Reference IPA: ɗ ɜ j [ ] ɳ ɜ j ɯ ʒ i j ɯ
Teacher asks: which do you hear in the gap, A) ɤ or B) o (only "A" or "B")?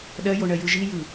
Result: B